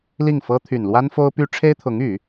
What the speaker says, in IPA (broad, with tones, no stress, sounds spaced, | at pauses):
l i˥˩ ŋ f ɤ˥ t̪ʰ y˨˩ n l w a˥ n f o˥ ʊ̯ p y˥ ʈ͡ʂʰ e˥ ɪ̯ t̪ʰ ʊ˧˥ ŋ y˨˩˦